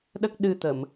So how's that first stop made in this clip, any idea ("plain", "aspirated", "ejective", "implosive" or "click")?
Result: implosive